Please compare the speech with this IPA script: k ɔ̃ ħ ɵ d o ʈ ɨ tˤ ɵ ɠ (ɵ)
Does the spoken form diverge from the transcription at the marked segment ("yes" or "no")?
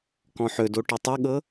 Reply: yes